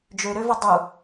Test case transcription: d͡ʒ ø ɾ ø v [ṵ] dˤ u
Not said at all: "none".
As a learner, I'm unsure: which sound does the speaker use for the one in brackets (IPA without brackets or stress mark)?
u